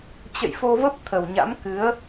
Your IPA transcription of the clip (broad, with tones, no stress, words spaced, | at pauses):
t͡ɕə̰˧˨jfo˧və˦˥p̚ t̪ʰə˨˩wɲa̰˧˥mkɨ˨˦ə̯